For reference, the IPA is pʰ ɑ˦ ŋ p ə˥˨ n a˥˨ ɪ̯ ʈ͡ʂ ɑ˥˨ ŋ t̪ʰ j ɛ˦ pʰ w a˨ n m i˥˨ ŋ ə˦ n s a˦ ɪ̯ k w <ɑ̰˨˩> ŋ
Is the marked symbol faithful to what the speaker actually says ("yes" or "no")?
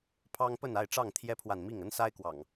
yes